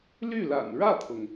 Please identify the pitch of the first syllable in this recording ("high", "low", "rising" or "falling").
falling